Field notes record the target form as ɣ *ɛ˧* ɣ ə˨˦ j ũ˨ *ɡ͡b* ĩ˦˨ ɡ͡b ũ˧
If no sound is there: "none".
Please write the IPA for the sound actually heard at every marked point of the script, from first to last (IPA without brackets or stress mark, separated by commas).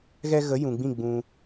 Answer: ɛ˧, ɡ͡b